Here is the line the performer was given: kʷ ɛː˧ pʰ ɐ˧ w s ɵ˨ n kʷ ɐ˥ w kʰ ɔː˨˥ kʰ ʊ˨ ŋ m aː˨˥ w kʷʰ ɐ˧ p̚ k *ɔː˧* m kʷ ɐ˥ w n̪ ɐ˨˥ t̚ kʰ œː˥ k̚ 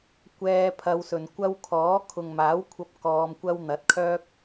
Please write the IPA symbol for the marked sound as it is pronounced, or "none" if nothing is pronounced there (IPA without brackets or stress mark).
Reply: ɔː˧